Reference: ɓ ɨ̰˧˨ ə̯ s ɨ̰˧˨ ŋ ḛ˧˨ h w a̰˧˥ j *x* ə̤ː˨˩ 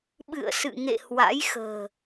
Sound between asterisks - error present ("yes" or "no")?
no